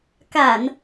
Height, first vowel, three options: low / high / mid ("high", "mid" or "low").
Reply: low